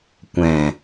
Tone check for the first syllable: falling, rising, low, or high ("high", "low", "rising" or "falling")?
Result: low